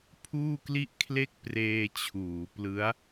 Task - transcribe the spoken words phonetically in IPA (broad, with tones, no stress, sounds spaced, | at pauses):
pʰ uː˥˩ k l i˥˩ ʔ kʰ l e˥˩ k̚ p r eː˧ t͡ɕʰ uː˩˦ p l ɯ˦˥ a̯